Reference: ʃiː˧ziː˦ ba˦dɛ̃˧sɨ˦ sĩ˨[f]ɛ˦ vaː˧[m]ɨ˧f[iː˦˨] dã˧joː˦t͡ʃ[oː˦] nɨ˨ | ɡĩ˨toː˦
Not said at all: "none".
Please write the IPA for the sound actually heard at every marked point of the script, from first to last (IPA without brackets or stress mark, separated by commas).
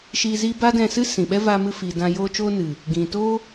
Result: ɓ, m, iː˨, oː˦